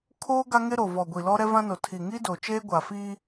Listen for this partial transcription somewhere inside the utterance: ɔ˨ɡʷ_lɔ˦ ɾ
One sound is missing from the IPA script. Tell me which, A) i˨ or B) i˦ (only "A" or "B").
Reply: A